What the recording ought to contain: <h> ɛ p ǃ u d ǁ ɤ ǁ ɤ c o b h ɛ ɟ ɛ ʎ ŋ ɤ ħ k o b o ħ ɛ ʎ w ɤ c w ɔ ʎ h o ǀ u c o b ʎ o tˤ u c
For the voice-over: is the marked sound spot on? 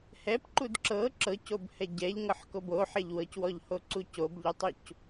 yes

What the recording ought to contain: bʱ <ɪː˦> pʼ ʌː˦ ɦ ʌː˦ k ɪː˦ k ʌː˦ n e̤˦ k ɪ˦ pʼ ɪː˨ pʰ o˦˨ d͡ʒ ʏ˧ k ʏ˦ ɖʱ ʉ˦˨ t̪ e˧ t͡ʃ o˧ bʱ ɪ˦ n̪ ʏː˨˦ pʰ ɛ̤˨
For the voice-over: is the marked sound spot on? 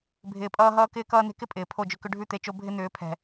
no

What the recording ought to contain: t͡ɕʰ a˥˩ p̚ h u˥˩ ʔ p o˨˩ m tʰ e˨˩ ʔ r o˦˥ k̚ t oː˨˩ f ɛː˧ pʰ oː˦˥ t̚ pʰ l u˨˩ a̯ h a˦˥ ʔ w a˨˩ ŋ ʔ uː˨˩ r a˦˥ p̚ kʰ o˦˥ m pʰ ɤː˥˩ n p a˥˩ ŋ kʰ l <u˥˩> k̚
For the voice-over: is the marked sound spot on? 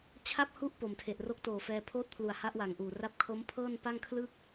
no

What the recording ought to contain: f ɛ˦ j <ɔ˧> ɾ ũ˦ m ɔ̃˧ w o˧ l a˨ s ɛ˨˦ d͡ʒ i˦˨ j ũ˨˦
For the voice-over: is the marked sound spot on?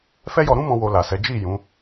yes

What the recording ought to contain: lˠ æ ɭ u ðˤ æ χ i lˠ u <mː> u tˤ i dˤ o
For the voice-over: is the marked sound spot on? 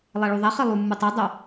yes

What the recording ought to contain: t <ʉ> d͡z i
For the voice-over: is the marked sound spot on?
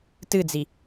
no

